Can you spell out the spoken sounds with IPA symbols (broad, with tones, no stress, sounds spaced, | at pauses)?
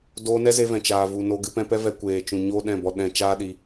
d oː˧ n ɛ˦ z e˧ v ɛ̃˨ t͡ʃ aː˨ v u˨ n o˧ ɡ ɨ˧ p ɛ̃˧ p ɛ˦ v ɛ˧ kʷ eː˨ t͡ʃ ũ˨ ɲ o˦ ɗ ɛ̃˦˨ b ɔ˧ ɗ ɛ̃˧ t͡ʃ aː˦ ɗ i˧